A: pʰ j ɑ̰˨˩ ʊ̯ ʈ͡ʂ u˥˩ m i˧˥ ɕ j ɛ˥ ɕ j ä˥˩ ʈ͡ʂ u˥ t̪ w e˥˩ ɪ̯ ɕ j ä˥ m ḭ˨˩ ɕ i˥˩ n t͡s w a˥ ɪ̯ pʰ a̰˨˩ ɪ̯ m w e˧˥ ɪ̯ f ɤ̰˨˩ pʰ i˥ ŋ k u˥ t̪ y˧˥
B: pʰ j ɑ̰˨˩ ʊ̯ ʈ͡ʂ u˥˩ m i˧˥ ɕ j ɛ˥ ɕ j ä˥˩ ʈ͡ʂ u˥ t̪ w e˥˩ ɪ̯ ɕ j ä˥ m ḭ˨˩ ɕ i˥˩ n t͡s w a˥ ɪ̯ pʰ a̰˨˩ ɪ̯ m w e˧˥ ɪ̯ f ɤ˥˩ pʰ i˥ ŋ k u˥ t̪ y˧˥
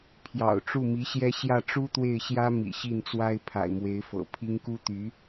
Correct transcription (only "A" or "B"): A